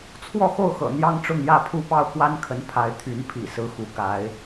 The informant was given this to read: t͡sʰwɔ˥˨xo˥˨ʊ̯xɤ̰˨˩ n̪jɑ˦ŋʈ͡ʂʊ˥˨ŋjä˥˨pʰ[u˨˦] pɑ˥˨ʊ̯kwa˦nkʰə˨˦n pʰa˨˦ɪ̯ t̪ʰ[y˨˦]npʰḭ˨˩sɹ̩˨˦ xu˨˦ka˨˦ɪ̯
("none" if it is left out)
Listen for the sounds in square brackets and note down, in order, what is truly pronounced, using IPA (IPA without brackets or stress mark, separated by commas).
u˥˨, y˨˦